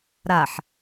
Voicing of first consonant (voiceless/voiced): voiced